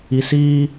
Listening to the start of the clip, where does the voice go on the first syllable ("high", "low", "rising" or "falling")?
high